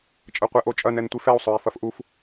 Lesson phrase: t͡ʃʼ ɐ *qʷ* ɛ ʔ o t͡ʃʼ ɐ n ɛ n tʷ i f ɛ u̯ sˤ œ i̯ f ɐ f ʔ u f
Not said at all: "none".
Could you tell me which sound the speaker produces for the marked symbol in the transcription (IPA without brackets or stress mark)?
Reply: qʷ